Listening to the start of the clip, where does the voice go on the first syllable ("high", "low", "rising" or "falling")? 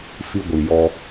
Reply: high